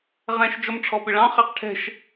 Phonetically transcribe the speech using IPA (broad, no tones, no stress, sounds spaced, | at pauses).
ʁ ɛ̃ ʃ d͡ʒ ɔ m ʈ͡ʂʰ ɔ p ɪ ɭ ɑ̃ χ ɛ q ʈʰ ɛ̤ ʃ